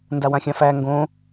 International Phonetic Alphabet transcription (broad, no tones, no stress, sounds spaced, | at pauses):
n d a w ã xʲ ã f æ ŋ ɡ õ